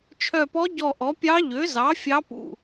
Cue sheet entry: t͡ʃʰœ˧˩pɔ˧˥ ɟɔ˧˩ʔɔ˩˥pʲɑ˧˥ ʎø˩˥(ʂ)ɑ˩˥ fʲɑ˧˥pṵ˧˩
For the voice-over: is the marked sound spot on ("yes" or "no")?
no